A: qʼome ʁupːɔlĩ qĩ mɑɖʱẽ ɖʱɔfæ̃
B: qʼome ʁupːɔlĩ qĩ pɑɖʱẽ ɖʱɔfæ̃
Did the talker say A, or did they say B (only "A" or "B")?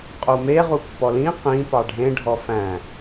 B